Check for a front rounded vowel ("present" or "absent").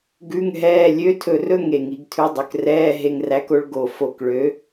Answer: present